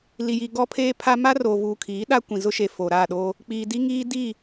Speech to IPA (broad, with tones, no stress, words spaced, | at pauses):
li˨ji˨ ɡɔ˦pʰeː˦pʰa˦ ma˦roː˨vuː˨kʰiː˨˦ ɗa˦kʷĩ˨zʊ˦ʃe˨ fo˨ɾa˦˨ɗoː˦ | k͡piː˨di˦ŋiː˦diː˦˨